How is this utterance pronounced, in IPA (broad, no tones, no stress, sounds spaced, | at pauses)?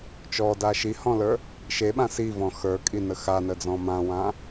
t͡ʃ ɔ d a ʃ i h ɔ̃ l ə˞ | ʃ e ɓ ã s i v ɔ̃ x ə˞ kʼ i n ə x a n ə d͡z ɔ̃ m ã w ã